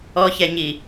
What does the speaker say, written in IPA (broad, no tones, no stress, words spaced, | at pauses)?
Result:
ɔçɛɲi